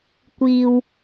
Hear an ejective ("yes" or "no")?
no